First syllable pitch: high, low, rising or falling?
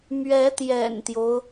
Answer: rising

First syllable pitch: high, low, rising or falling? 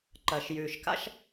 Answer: low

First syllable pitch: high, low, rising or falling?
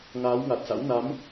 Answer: rising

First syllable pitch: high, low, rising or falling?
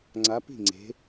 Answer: rising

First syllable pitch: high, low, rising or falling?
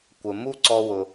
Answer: low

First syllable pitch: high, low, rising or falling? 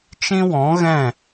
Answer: high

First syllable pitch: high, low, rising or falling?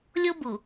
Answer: high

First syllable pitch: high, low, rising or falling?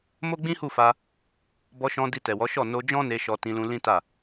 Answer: high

